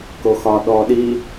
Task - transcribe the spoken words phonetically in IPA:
k o x ɒ ɗ ɔ ɗ i

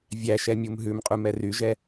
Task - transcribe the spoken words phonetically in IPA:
vʲ æ ʃ ɛ mʲ u m ɦ ʉ m qʼ u m ɛ r y ʒ ɛ

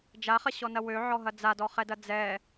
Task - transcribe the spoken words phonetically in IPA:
d͡ʒ a χ ɐ ɕ ɔ n ɐ w ø ʕ ɔ ɦ ɐ d͡z a d ɔ χ ɛ d ɐ d͡z ɛ

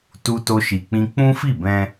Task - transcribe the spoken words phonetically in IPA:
t u˦ t o˦ ʃ i˧ k͡p ĩ˦ k͡p ũ˦ f i˦˨ b ɛ̃˧

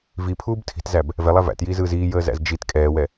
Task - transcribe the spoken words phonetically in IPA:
v i pʰ uː b tʰ i̤ t z æ b | v ɛ lˠ æ v æ̰ t j iː z ɯː z iː j əː z æ̰ z d͡ʒ i t kʼ ɛː w ɛ

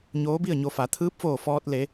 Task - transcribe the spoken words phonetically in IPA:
ɲ oː˧˥ b i˥˨ ə̯ ɲ o˧ f a˩˧ t̪ʰ ɯː˧˥ p̚ f oː˧˩ f ɔː˧ t̚ l e˩˧

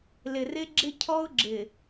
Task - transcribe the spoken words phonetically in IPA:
l ɪ˨ r ɪ˦ ɡ͡ǁ ɪ˦ cʰ ɔ˦ ʊ̯ ɡ͡ǁ ɪ˨

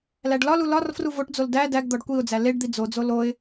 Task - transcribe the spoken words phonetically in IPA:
l æ ɖ l ɒ l u l ɒ r f r u v o ʈ d͡z o l d æ d æ ɡ d̪ ɒ ɖ kʷ i ʊ̯ d͡z æ l e ɖ d̪ i d͡z o d͡z o l o ɪ̯

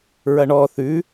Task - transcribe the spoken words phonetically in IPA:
ɹ ɐ ɳ ɔ θ ʉ

